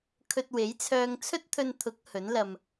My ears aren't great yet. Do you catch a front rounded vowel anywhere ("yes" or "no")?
yes